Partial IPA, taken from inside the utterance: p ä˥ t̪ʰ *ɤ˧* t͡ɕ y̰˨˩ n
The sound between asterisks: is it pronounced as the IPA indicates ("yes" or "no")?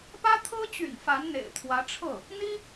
no